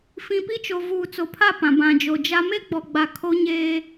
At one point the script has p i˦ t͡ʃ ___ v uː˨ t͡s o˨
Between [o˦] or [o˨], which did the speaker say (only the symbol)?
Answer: o˨